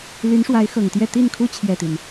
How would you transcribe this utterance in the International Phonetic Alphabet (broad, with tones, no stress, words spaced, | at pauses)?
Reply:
ly˧˥n ʂwa˧˥ɪ̯xɤ˨˩ŋt̪jɛ˥˧ t̪i˥˩nkʰu˥ t͡ɕʰjɛ˥˩t̪i˩n